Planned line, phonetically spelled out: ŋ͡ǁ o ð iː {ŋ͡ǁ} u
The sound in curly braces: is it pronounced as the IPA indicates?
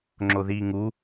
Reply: no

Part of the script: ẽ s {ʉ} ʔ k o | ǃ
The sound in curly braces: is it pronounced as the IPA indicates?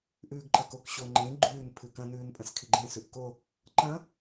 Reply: yes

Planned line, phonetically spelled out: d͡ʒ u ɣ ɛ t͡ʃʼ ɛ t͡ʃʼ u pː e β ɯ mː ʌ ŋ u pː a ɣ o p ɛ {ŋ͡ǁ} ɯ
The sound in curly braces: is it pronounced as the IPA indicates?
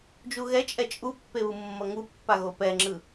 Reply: yes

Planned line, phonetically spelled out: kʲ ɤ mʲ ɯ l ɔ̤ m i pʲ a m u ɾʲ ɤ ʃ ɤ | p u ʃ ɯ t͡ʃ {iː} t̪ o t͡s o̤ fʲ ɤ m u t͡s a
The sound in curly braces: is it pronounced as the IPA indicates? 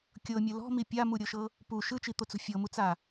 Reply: no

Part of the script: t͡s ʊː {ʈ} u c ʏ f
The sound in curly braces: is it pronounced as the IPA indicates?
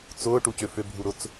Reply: yes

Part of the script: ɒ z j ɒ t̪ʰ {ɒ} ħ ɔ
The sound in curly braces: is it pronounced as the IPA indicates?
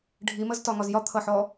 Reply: no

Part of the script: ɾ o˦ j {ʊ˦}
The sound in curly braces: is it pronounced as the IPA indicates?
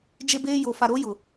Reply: no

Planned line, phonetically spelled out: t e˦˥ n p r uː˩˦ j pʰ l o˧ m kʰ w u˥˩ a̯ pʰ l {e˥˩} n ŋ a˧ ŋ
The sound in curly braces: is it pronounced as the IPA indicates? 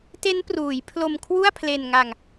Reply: no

